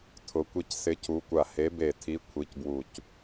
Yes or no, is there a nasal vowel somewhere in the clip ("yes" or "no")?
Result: no